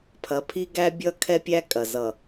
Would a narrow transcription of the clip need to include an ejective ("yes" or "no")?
yes